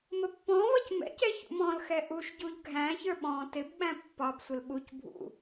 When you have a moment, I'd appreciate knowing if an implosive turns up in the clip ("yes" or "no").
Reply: yes